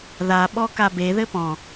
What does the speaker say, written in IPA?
ðaɓɔ kabe ðɘpɔ̃

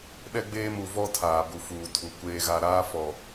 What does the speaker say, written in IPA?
ɗɛ˦ɡ͡beː˦mu˨vɔ˦ tʰaː˨bu˨fuː˨tʰu˨ kʷeː˨ɣa˨ɾaː˦ fɔ˨

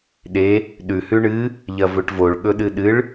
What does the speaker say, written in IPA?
ɗe | ɗʉhʉ ɳɨ | ʎɐvɵʈvoɭ ɠɵɗɨɗɨɭ

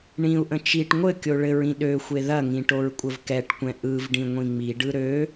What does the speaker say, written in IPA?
ɳĩu̯ʔə̃ t͡ʃiʈ ŋʷɘ kʲoɭɘɹĩ ɗøxʷe ðɐŋĩ ʈoɹkʷʼəvkɛʈkʷɛ̃ ʔɯvɖĩ ŋʷĩŋ͡miɖɯ ɾø

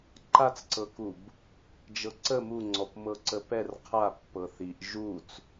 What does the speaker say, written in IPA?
ǃat͡sǀɤkub | d͡ʒɤǀə muŋ͡ǀɔp mɤǀəpɛr qʰa pːɤθiʔ ʒut͡s

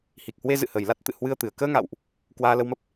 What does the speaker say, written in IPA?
hi˨˩k̚hwe˧ zɨ̰˧˨hə˨˩jla˦˥t̚ t̪ɨ̰˧˨hwɨ˧ə̯t̪ɨ˨˩ə̯ kəː˧ŋa̰˧˨wʔ | kwaː˧lə˧wmə˦˥p̚

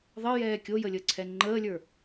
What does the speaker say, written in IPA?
ðˤəjɛː kʲojəlʲəǀʰɛ ŋ͡ǃəːlʲə˞

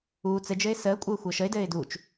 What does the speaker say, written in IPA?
uː t͡sɘd͡ʒɘɪ̯ səːkʷʼɘː xʷəːʃəɪ̯dɘːɪ̯ duːt͡ʃ

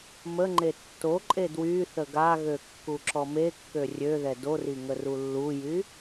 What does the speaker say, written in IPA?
məŋ͡ǃe tːoǃʼe dwyθə ɡaɣø kːuǁɔmekːø rʲøðɛ dori ŋərulːujy

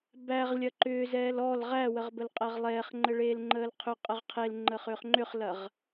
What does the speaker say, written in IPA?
bæʁ lʲɐǃʏːzɛːl ɔl ʁæwəʁ bəlqʼɛʁlˠɛːχŋ͡ǃə ɭeːlŋ͡ǃəːlqʰʏqʼəʁ qʰel ŋ͡ǃəːχʏːχŋ͡ǃʏχlɐʁ

